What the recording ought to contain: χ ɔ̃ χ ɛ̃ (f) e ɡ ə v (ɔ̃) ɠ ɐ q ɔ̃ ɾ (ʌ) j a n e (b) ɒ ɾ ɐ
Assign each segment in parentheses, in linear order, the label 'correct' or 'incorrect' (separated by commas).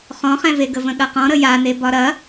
incorrect, incorrect, incorrect, correct